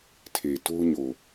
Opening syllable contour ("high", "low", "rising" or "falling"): low